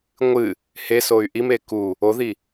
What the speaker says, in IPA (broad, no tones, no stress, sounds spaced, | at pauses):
ŋʷ ɨ | h e s o y̯ ʔ i m e k u | o ð i